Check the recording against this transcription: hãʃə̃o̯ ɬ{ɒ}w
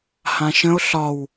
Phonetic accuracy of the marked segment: correct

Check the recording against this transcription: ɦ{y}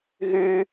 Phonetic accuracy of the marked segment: correct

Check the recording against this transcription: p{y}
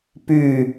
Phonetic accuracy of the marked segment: correct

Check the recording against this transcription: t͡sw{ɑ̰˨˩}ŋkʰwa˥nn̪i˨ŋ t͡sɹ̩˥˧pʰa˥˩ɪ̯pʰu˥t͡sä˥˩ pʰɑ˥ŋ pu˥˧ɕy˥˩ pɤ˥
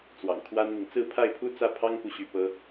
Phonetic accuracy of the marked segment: correct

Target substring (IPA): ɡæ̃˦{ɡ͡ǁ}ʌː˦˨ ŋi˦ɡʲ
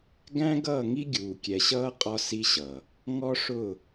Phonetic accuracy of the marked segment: incorrect: ɡ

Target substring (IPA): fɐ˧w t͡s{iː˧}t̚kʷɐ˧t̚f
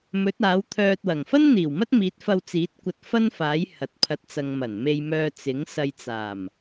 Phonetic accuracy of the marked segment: incorrect: iː˨˥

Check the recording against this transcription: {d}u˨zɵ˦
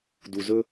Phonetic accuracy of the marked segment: correct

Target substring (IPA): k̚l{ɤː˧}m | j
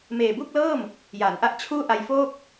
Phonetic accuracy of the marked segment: incorrect: ɤː˥˩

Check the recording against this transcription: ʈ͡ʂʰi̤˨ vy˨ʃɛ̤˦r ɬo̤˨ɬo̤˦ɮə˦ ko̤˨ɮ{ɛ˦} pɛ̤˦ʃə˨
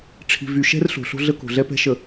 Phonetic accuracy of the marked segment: correct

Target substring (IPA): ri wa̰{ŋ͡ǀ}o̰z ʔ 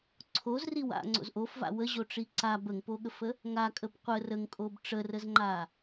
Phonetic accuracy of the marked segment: correct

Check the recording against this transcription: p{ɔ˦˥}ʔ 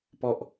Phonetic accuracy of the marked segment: incorrect: ɔ˨˩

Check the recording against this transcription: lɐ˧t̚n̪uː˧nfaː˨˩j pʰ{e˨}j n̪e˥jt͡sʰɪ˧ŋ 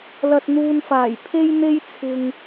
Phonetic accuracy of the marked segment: incorrect: e˥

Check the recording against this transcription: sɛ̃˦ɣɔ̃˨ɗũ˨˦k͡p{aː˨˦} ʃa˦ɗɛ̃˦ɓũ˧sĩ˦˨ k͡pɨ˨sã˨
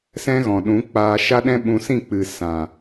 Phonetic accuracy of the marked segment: incorrect: aː˧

